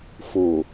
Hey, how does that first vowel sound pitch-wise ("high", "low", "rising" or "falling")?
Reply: low